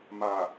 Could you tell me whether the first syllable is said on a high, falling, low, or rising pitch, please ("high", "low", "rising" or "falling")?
low